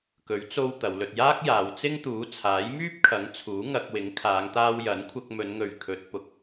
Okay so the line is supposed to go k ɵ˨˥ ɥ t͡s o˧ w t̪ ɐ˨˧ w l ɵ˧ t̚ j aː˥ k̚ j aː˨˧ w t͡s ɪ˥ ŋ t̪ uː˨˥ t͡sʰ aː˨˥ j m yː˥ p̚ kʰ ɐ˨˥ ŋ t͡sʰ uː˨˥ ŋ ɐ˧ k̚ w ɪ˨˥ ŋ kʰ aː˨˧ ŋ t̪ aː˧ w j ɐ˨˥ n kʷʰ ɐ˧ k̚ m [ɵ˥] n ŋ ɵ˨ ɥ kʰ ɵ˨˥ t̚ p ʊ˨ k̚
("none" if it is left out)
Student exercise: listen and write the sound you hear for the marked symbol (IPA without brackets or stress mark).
ɵ˨˧